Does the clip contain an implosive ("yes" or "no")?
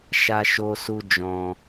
no